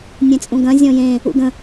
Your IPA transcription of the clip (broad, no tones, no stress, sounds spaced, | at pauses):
nʲ ẽ t͡sʼ ũ ɡ ɐ̃ zʲ ɔ̃ j ẽ | ṵ ɡ ə̃